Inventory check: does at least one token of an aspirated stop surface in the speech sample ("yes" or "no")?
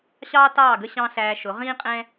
no